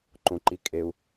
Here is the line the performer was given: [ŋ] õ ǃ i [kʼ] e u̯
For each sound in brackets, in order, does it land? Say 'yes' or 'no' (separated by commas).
no, yes